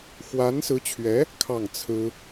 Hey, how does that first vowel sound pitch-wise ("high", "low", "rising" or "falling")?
rising